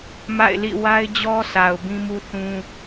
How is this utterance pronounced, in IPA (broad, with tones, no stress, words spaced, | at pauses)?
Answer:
ma̰˦˨ɪ̯lḭ˦˨ wa˦ɪ̯d͡ʑɔ˦ sa˨ʊ̯bĩ˦mu˦ θũ˦